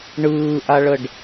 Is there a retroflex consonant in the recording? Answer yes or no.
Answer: yes